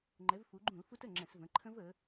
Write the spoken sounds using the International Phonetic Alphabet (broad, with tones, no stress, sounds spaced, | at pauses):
ŋ͡ǃ ɛ˩˧ v f u˩˧ ɡ͡ǃ ũ˧˩˧ l f u˦˥ t ə˩˧˩ ŋ͡ǁ ɛ̃˧˩˧ s v ə̃˩˧˩ ǃʰ ə̃˦˥ v ə˩˧